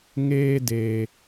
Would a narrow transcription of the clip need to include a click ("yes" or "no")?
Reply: no